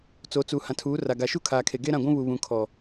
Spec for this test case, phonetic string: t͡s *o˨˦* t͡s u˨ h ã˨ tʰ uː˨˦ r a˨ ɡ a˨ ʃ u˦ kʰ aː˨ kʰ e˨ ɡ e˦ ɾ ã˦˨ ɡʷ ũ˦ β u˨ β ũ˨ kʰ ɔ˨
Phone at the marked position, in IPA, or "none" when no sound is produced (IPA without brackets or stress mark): o˨˦